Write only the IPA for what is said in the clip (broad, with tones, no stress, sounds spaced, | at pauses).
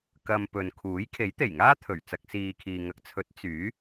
k ɐ˨ m p ɵ˨ n kʰ uː˨˥ j kʰ e˨˥ j t̪ e˨˩ j ŋ aː˥ t̪ʰ ɵ˨˩ ɥ t͡s ɐ˧ k̚ s iː˨ kʰ iː˨ ŋ ɐ˨ k̚ t͡sʰ ɵ˨˥ t̚ t͡s yː˨˥